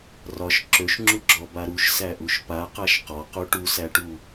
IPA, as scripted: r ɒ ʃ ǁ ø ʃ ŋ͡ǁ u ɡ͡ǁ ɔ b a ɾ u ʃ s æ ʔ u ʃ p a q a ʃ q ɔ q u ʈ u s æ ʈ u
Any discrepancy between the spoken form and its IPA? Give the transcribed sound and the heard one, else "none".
none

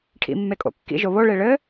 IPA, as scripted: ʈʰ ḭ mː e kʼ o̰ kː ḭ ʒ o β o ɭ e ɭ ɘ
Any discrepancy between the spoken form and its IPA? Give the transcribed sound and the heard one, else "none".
none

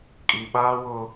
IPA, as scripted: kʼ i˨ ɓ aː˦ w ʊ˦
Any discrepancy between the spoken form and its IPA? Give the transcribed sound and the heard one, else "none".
none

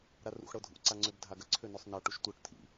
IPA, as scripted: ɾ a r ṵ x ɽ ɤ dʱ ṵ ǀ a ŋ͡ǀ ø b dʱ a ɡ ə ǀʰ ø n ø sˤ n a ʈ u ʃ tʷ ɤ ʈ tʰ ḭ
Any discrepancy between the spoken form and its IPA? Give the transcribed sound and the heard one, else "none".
none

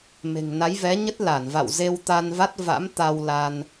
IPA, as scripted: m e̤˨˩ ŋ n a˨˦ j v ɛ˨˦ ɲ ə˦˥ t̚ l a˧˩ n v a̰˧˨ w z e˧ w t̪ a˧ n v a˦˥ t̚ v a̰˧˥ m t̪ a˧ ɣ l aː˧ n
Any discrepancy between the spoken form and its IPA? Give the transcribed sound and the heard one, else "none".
ɣ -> w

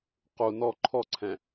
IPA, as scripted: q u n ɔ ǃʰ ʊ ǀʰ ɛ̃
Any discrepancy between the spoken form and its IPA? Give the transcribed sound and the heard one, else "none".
ʊ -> ɔ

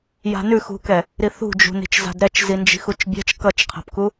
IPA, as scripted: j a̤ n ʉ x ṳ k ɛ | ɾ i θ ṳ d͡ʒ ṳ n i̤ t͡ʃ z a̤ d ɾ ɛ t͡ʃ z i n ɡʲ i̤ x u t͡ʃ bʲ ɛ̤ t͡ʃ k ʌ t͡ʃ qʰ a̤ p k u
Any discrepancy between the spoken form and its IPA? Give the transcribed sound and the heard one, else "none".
ɡʲ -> d͡ʒ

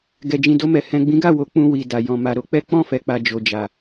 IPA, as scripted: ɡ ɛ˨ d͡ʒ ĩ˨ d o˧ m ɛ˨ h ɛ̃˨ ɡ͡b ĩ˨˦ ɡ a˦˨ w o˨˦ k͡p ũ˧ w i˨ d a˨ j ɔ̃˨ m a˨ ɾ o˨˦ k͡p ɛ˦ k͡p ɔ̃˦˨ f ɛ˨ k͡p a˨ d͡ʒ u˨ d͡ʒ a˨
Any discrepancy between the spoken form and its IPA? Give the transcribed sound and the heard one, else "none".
u˨ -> o˨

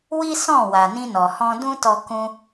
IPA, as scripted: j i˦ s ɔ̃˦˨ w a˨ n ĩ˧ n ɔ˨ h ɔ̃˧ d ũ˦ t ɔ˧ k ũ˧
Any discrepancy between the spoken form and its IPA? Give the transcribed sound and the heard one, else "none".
j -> w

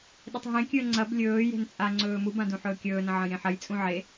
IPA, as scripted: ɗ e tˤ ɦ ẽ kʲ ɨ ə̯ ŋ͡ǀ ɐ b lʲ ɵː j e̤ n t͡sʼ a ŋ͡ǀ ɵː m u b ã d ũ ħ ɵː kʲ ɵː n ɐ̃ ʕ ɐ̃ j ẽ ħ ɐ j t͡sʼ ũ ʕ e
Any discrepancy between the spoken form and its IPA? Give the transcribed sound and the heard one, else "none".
none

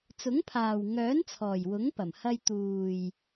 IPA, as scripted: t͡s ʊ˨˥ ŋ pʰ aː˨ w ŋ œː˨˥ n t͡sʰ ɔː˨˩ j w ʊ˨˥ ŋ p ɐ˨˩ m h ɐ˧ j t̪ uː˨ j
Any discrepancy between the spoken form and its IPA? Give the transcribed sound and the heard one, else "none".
none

